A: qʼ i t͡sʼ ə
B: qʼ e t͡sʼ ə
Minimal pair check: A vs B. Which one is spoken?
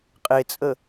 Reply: B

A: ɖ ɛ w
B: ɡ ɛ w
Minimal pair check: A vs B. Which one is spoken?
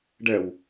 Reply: A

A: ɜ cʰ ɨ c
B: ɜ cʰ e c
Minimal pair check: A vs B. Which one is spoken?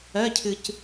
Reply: A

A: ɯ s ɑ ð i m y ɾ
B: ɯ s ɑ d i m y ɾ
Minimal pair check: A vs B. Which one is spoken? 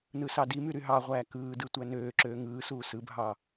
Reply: B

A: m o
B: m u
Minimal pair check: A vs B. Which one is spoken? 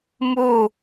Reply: B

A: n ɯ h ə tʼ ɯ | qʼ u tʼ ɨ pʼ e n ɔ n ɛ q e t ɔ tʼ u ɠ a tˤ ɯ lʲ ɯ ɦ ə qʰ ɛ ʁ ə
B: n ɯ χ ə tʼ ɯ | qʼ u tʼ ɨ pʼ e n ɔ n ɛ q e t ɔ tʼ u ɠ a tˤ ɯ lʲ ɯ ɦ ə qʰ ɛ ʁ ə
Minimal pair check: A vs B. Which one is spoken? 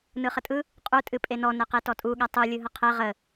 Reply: B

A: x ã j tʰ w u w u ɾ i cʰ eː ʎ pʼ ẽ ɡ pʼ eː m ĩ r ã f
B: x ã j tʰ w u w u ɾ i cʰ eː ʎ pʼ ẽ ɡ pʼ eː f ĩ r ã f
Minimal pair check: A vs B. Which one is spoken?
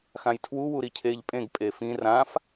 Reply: B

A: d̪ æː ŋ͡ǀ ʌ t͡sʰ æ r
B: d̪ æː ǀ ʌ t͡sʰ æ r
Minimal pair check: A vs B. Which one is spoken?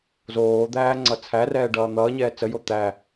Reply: A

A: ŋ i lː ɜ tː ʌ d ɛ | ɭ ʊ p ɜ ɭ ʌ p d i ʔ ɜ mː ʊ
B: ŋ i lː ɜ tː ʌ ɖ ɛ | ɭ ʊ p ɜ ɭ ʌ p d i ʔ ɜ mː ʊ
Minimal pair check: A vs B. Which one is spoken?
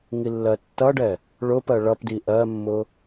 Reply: B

